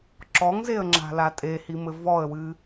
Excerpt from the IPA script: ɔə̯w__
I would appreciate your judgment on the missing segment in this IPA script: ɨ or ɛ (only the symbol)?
ɨ